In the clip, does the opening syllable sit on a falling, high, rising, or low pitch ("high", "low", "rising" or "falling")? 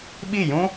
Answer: falling